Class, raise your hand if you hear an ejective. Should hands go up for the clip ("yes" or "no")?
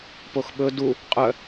yes